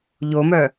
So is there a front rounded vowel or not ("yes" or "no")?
yes